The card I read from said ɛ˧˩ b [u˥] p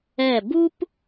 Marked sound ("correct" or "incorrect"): correct